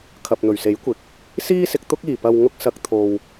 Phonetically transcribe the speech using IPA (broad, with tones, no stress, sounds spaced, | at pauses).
kʰ ɐ˨ p̚ n̪ ɵ˨˩ ɥ s e˨˥ j kʷ ɪ˨˥ k̚ | s iː˧ s ɪ˨ k̚ t̪ ʊ˧ k̚ iː˨˩ p ɐ˨ w ŋ ʊ˧ k̚ s ɐ˨˥ k̚ t̪ʰ o˨ w